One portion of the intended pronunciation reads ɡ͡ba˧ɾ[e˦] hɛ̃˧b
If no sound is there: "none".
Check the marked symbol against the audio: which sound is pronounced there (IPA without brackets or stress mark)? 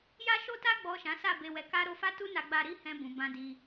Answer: i˦